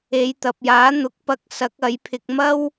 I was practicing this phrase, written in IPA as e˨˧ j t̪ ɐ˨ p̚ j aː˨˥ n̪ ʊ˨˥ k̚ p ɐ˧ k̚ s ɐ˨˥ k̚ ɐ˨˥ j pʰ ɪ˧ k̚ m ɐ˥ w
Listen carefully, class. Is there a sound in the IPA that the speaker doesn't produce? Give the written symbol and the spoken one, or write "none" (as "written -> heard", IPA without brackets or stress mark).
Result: none